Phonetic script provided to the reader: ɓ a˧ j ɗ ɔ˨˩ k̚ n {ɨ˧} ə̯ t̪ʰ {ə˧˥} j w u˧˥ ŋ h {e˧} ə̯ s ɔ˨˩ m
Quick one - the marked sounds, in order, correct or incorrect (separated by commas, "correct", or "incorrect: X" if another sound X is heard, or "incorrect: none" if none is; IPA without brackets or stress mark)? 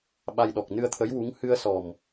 correct, correct, incorrect: ɨ˧